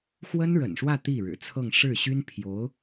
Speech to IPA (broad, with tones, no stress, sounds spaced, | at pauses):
x w ə˥ n ɻ ə̰˨˩ n ʂ w ä˥˧ t̪ i˥˩ ɻ ɻ̩˨˩ t͡sʰ ɤ˥˧ ŋ ʂ ɻ̩˥˩ ɕ y˥ n pʰ j o˧˥ ʊ̯